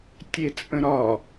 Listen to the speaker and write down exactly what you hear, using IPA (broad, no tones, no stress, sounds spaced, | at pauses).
tʲ e t͡sʼ ə̃ ɾ ɒ